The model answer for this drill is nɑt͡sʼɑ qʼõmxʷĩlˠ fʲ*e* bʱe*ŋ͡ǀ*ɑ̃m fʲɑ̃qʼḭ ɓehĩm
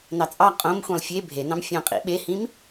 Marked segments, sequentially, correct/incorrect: correct, incorrect: n

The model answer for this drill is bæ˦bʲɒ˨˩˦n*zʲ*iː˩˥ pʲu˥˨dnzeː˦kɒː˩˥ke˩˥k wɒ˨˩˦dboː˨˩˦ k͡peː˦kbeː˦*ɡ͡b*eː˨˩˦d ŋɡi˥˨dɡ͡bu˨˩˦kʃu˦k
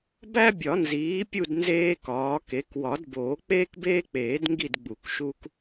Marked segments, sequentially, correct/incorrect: incorrect: z, incorrect: k͡p

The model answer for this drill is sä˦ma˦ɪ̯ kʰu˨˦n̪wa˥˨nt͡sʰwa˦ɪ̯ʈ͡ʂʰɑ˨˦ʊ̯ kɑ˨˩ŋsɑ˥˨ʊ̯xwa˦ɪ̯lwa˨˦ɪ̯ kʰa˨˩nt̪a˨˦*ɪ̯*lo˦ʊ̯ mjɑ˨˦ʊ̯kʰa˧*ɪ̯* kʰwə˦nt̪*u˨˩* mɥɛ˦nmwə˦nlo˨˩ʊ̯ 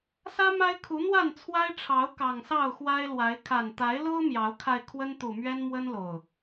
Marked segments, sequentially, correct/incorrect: correct, correct, correct

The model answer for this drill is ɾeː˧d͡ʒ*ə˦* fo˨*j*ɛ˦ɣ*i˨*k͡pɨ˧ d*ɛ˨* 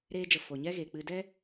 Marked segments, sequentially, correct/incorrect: incorrect: ə˨, incorrect: ɲ, incorrect: e˨, incorrect: ɛ˦

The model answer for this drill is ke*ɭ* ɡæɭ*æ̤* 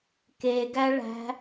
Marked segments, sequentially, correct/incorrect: incorrect: none, correct

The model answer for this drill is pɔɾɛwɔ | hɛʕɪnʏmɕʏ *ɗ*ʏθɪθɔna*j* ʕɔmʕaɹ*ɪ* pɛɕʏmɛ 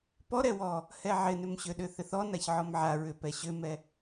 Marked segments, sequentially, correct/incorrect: correct, incorrect: ç, incorrect: ʏ

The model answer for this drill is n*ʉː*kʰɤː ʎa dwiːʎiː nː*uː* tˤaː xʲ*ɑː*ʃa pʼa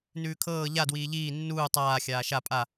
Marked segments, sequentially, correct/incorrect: correct, correct, incorrect: aː

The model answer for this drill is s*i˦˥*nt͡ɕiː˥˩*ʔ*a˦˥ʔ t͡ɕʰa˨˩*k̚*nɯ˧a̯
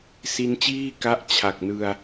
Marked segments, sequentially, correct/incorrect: correct, incorrect: k, correct

